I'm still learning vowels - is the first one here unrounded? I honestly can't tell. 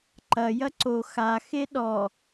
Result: yes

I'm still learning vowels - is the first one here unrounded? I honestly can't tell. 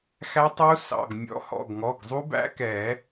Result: yes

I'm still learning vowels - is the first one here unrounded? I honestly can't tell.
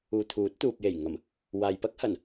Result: no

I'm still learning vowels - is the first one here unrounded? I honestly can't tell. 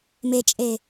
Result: yes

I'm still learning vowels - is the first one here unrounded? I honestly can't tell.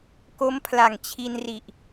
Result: no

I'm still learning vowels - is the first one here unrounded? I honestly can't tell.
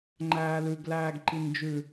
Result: yes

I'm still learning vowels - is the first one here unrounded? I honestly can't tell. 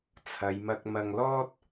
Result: yes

